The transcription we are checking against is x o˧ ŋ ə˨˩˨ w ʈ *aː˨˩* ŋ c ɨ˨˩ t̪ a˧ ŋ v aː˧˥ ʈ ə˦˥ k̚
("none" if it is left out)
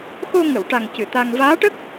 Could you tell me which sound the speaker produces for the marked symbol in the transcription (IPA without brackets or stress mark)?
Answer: a˨˩